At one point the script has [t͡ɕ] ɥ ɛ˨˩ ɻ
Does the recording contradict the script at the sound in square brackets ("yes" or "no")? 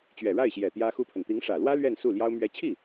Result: no